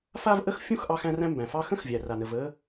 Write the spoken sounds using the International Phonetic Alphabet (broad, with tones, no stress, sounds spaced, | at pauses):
f a˥ v ʔ ə˥ x fʲ ũ˥ x ʔ ɑ˥ x æ̃˥ r æ̃˥ m b æ̃˩ f ɑ˥ x ə̃˥ x vʲ æ˩ r a˩ n ə˩ v ə˥